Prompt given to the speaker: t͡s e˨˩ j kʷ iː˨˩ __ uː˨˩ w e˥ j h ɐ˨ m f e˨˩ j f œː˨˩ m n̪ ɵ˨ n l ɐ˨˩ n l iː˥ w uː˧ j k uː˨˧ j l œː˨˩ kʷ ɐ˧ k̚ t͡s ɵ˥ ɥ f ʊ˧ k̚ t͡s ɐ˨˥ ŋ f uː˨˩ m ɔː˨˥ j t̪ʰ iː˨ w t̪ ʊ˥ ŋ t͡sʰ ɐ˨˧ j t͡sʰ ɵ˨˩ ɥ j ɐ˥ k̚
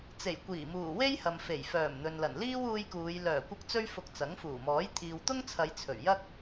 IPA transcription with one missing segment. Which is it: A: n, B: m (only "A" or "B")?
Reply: B